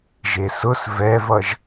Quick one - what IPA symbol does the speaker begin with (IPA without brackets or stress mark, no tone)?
ʒ